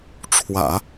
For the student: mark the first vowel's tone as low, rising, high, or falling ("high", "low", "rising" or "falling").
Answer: low